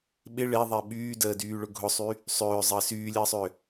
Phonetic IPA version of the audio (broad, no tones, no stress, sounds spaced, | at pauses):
ɓ ɪ ɭ e ðˤ e ɓ yː d əː d yː ɭ ʊ ɡʱ ʊ sˤ y | sˤ ʏː zˤ əː s yː lʲ əː sˤ ʏː